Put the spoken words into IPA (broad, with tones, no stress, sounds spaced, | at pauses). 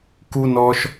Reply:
k u˦ n ɔ˧ ʃ